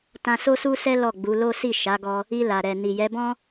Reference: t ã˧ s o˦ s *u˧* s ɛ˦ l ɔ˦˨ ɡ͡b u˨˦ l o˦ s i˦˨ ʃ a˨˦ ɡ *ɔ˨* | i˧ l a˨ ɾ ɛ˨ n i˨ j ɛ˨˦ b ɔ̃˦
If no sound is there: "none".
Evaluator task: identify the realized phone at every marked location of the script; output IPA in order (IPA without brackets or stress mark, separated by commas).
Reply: u˦, ɔ˧